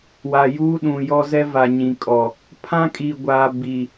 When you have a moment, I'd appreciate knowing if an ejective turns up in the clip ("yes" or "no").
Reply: yes